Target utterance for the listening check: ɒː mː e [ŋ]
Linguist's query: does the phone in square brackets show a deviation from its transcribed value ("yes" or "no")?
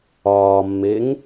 no